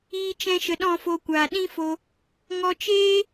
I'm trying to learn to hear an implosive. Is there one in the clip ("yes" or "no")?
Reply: yes